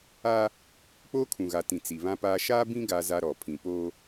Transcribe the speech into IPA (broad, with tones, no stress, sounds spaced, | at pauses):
a˦ | k͡p oː˦ kʰ ũ˨ ɣ a˨ t ĩ˨ t͡s i˨ β ã˦ p aː˦ ʃ aː˦ b ĩ˦ ɡ a˦ z a˦ ɾ ɔ˨ pʰ ĩ˨ p oː˦